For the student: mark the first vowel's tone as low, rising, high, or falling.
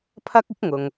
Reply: high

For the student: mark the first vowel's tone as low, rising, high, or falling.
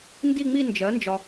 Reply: falling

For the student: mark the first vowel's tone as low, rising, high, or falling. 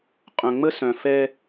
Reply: low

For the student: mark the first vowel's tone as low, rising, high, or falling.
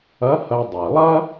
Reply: rising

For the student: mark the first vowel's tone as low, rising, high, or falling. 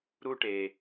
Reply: high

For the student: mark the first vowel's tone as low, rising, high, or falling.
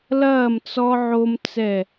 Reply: falling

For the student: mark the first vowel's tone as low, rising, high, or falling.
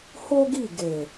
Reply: high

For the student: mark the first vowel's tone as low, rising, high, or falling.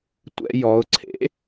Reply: high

